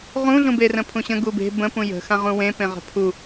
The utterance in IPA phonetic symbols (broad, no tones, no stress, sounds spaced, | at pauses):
ʁ ũ ɮ ũ b e r ə̃ pʰ ũ ɕ ə̃ ɡ u b e̤ b ə̃ p ũ j ə̤ x ã ʁ ũ w ẽ p ẽ ʁ ə̤ pʰ u